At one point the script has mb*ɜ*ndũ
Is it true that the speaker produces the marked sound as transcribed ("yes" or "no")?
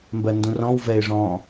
yes